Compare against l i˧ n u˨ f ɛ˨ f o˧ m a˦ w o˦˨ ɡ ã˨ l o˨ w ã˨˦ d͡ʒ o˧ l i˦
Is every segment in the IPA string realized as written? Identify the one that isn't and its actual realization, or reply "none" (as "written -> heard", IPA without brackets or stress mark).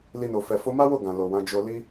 u˨ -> o˨